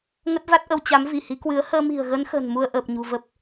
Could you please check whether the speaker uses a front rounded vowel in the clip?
no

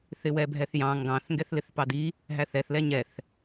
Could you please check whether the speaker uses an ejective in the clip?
no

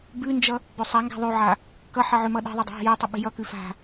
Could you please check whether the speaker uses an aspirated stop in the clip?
no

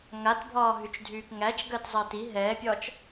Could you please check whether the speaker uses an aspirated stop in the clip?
no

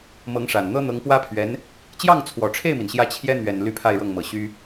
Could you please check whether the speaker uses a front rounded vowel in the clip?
yes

